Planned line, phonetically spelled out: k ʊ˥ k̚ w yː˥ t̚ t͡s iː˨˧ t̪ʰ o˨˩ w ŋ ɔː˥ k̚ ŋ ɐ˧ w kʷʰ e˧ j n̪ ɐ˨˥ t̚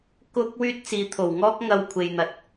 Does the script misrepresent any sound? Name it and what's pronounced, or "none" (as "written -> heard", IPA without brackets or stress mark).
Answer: none